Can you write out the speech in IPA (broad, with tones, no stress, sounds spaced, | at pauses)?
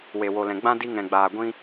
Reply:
w e˨ w o˨ l ɛ̃˨ ɡ͡b ã˦ d i˧ ŋ ɛ̃˨ ɡ͡b aː˨ ɡʷ ĩ˧